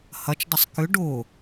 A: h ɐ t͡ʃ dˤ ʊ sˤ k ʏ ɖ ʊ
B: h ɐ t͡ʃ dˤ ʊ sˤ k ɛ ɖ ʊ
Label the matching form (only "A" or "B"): A